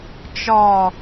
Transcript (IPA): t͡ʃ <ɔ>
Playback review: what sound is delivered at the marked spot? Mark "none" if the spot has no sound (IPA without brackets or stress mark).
ɔ